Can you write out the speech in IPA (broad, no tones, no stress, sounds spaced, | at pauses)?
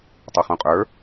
tˤ u χ ũ qʼ ə˞